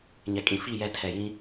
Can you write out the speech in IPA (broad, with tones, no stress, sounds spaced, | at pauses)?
ɲ ɛ˨ kʼ ĩ˨ f i˦˨ j ɛ˨ tʰ ɛ˨ j ĩ˦